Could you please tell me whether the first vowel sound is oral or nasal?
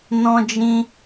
nasal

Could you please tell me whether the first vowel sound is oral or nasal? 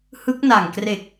oral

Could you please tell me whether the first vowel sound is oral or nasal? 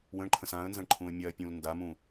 nasal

